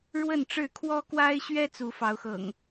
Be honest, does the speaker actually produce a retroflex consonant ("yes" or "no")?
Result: yes